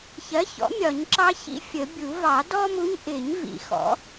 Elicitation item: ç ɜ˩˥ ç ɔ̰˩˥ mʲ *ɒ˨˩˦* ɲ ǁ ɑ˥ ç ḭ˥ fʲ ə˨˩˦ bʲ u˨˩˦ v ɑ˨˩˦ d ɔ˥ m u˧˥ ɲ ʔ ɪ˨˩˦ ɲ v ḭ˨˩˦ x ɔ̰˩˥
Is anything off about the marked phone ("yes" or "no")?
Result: no